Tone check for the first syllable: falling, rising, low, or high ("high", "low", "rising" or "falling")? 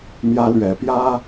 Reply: high